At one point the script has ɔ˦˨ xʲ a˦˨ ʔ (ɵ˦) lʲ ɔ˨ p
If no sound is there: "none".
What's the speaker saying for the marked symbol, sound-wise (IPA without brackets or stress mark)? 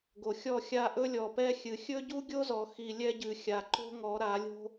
ɵ˦